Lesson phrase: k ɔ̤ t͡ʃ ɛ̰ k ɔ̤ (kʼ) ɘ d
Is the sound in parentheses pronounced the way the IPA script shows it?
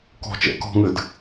no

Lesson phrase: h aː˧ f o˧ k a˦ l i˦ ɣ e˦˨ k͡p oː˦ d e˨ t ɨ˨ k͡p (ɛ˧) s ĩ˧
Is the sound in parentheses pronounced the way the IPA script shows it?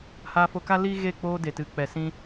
no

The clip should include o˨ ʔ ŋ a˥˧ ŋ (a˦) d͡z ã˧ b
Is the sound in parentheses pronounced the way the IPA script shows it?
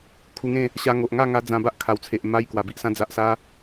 no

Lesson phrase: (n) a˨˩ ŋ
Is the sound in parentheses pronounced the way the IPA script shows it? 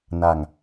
yes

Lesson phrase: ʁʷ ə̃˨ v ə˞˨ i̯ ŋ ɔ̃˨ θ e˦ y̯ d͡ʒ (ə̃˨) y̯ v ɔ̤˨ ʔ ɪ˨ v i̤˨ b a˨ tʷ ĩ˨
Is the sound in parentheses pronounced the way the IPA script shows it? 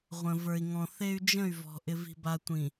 no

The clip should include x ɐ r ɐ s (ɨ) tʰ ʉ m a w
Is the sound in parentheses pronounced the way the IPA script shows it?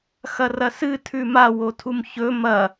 yes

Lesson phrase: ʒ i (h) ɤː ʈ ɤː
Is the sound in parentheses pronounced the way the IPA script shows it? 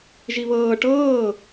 no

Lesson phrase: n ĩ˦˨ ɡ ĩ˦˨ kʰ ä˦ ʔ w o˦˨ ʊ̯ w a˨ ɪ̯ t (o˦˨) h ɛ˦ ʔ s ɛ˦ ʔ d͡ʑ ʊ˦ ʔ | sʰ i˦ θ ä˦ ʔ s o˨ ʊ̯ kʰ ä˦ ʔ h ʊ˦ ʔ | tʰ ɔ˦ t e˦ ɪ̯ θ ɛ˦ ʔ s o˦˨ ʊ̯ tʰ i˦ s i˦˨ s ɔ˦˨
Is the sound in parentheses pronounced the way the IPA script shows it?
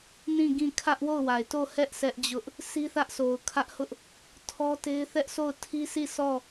yes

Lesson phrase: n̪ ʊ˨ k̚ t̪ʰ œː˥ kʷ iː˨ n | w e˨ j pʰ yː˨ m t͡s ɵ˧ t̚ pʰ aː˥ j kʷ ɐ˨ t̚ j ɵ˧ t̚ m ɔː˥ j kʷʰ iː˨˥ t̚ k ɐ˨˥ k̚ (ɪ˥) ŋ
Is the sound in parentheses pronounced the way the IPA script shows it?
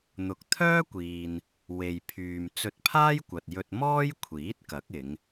no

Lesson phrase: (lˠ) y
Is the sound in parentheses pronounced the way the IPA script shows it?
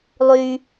yes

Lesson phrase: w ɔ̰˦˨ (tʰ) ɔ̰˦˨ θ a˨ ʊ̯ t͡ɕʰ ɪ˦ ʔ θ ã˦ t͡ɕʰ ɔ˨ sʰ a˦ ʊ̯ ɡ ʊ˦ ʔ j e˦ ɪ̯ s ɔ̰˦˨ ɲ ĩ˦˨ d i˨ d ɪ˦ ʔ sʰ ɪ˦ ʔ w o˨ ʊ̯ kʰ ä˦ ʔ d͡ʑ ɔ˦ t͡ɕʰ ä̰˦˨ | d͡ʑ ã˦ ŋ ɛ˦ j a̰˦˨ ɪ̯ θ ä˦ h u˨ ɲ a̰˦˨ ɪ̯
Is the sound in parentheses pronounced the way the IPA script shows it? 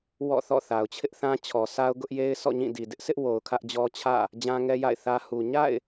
no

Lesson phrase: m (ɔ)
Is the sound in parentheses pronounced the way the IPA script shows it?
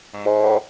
yes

